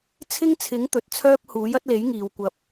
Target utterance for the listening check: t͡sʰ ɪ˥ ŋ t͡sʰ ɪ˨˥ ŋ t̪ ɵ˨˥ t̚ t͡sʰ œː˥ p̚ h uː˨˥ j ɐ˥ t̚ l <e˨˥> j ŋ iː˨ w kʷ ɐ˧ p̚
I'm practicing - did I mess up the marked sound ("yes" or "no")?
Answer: no